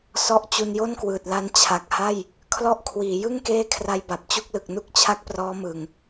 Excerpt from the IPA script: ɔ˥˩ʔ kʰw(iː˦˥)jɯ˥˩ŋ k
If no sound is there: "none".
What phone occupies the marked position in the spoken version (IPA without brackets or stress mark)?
iː˩˦